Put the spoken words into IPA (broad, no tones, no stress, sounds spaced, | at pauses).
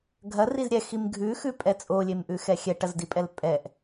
ɡʱ ɐ r i z ɾʲ ɛ x i m ɡʱ ʉ x ʉ pʼ ɛ t͡sʼ o lʲ e m ʔ ʉ x ɛ xʲ ɛ ʈ ɐ z d i pʼ ɛ l pʼ ɛ ʔ